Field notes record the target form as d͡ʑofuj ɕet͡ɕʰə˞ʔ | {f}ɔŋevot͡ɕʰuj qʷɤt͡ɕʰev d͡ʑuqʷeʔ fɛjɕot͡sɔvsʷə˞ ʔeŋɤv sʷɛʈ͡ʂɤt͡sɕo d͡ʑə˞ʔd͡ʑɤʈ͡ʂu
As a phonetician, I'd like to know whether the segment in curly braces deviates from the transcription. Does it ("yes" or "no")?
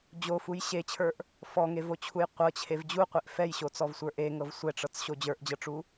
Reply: no